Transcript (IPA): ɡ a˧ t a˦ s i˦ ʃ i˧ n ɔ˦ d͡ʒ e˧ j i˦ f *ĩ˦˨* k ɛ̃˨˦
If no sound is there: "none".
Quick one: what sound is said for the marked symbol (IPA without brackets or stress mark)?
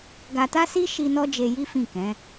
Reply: ĩ˦˨